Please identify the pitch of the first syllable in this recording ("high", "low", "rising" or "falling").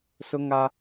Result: high